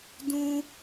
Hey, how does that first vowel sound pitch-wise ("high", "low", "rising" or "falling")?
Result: high